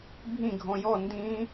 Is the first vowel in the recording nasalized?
yes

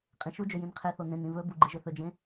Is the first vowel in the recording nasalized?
yes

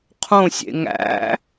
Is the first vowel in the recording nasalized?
yes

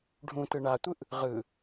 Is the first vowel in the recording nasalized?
yes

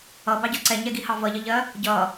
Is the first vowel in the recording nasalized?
no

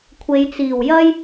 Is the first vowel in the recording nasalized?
no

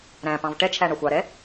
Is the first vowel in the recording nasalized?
yes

